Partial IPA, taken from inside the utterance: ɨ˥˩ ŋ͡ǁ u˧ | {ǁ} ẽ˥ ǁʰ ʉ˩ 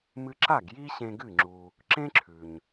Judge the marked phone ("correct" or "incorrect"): correct